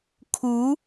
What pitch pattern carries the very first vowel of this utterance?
rising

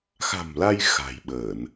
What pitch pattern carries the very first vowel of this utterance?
low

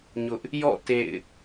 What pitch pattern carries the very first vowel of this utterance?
high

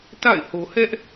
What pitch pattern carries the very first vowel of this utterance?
falling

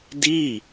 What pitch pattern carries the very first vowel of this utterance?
falling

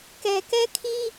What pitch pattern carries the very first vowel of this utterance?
low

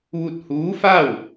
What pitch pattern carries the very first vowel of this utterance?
falling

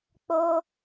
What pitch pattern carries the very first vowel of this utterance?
high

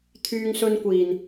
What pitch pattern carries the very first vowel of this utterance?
high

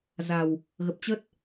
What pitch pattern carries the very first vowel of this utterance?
low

